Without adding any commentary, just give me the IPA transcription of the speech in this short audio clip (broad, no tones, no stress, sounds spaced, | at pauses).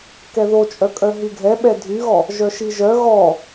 k ɛ ð o t͡ʃʼ œ kʼ œ ɦ y ɡʱ ɛ ɓ ɛ dʱ y ɣ ɔ | ʒ œ ʃ i ʒ œ ɣ ɔ